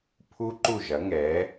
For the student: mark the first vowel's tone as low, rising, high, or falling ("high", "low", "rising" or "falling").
high